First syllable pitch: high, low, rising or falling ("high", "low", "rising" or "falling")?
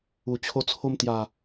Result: low